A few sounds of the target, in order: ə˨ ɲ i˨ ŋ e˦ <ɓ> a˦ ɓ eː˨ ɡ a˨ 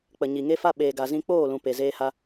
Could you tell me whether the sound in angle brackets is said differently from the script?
yes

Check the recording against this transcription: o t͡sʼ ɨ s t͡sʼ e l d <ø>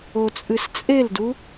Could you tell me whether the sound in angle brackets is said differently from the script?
yes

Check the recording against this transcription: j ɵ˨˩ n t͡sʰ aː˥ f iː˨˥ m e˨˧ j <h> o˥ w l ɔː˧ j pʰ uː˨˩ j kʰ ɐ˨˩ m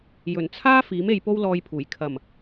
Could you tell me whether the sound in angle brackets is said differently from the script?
yes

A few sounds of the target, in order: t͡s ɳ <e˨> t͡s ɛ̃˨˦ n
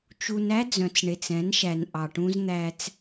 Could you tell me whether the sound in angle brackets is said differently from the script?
no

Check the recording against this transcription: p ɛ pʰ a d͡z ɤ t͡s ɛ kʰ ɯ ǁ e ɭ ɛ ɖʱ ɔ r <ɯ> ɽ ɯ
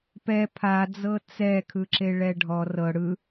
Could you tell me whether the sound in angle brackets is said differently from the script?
yes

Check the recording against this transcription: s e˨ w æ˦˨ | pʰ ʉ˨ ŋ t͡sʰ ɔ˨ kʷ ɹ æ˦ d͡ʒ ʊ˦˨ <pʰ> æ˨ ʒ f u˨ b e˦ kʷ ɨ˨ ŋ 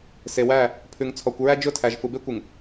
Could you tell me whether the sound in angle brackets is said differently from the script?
yes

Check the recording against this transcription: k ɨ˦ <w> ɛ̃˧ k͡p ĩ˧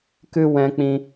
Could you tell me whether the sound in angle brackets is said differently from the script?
no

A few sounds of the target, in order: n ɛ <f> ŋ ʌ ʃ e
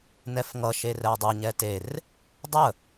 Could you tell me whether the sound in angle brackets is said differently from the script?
no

